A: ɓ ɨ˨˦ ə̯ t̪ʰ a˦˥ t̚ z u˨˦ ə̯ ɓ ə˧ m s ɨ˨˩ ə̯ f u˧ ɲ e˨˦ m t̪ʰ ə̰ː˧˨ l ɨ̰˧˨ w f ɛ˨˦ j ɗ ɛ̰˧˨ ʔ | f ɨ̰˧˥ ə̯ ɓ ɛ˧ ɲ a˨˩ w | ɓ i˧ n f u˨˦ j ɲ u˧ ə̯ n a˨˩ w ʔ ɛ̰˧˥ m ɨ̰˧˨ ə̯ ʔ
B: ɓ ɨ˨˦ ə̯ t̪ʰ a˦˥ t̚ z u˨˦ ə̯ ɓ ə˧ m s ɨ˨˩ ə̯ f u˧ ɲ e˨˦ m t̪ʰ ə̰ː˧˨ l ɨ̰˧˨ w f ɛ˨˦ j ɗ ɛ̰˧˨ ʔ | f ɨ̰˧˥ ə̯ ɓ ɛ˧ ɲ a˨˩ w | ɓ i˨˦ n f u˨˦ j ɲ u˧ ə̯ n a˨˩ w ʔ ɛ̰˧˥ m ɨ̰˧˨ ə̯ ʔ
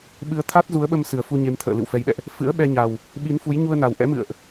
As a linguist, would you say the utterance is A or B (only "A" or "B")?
B